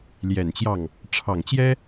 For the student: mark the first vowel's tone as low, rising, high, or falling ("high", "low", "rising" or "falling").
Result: low